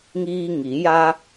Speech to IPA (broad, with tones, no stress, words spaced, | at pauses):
ŋiː˧ŋi˩˧ ja˧